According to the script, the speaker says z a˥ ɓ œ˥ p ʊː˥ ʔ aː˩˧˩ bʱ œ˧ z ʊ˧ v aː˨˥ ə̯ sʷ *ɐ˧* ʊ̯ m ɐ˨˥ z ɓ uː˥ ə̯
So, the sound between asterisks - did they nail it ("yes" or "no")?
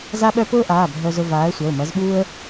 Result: no